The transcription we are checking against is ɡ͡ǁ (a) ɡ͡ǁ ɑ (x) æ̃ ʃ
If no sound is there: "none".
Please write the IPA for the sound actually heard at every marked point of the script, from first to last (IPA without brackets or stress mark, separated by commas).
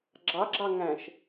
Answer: ɑ, ŋ